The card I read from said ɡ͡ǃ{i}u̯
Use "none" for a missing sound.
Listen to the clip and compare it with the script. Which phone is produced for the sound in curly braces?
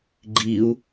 i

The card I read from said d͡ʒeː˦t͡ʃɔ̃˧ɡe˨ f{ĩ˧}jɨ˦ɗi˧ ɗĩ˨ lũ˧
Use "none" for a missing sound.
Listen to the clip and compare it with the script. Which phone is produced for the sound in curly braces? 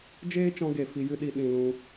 i˧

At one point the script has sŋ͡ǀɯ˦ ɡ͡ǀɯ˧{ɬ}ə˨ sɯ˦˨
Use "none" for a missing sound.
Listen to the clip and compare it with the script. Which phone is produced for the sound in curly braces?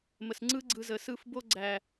z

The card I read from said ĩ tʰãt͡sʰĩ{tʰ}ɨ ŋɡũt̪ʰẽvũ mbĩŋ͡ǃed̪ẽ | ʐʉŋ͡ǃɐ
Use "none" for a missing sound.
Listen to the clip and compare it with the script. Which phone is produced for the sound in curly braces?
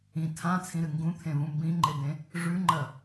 ɾ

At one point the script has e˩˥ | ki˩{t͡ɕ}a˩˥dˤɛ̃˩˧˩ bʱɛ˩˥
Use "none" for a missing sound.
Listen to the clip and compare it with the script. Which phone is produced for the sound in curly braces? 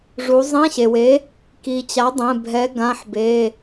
t͡ɕ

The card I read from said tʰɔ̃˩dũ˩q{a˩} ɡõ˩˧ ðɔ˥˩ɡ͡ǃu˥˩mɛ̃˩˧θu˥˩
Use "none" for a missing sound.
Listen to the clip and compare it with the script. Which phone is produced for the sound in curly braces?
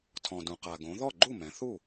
a˩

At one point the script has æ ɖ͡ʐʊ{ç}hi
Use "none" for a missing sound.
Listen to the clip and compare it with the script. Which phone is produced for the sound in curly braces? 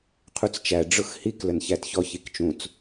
x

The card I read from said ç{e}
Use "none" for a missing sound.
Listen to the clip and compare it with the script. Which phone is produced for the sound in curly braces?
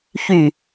y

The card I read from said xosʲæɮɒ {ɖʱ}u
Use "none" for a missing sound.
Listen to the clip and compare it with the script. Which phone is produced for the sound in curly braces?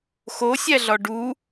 ɖ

